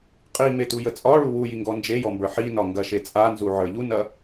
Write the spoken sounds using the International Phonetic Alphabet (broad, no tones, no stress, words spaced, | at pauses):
qʼimetujə t͡sʼɒɭu wujiŋɡɔ nd͡ʒejɔmbə˞ ħinɒŋɡɐʃe t͡sʼanzuʕə˞ ʎunɐ